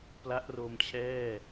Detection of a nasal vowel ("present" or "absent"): absent